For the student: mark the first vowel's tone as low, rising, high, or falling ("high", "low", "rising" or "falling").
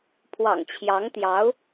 low